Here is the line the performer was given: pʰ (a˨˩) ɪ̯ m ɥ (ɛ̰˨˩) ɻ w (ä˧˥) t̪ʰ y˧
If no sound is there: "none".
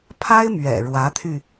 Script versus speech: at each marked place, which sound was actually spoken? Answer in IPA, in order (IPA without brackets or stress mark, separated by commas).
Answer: a˥, ɛ̰˨˩, ä˧˥